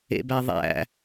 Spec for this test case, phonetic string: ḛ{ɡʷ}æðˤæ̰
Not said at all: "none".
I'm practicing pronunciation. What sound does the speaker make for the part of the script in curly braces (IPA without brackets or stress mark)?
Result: b